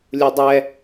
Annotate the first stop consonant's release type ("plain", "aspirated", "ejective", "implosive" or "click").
plain